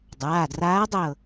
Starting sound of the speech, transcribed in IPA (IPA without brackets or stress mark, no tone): dˤ